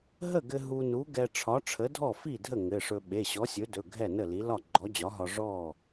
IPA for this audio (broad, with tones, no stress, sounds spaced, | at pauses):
ɦ ə˥˩ ɡ ɘ˧ ɦ u˧ n u˨˥ ɡ ɛ˧ ʈ͡ʂʰ ɒ˨˥ ʈ͡ʂʰ ə˨˥ dʱ ɔ˥˩ f i˥˩ dʱ ə˥˩ ŋ ɘ˩˧˩ ʂ ɵ˧ ɓ e˩˧˩ ɕ ɔ˨˥ sʲ ɵ˨˥ d ɵ˩˧˩ ɡʱ ɛ˥˩ n ə˥˩ l i˨˥ l ɒ˥˩ ɡ͡ǃ ɔ˨˥ d͡ʑ ɒ˨˥ ɦ ɒ˧ ʐ ɔ˥˩